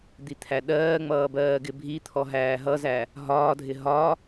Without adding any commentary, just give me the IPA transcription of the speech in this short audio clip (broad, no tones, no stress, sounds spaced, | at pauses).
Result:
d̪ i t̪ʰ æ ɗ ɜː ŋ͡m ʌː b ɜː ɡ ɪ bʱ i t̪ʰ ɔ ɦ æː ɦ ʌ z æ | ɦ ɒː dʱ ɪ ɦ ɒ